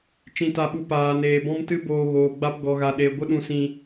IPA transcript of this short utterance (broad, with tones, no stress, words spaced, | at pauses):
t͡ʃĩ˧ta˧ɓu˧ paː˨neː˨ bɔ̃˦mtɨ˦boː˧ɣoː˨ ɡ͡ba˧pɡɔ˨ɣa˨ ɗe˨ ɡʷə˦ɗũ˧sĩ˧